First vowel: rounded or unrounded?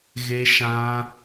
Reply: unrounded